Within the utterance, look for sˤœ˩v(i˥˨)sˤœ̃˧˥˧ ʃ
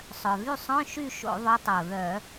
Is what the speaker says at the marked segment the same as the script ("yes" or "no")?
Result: no